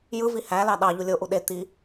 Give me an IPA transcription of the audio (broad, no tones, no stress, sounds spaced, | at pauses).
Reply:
j ɯ v i h æ l ɑ ɗ ɑ ʎ u lʲ o ʔ u ɗ e t̪ i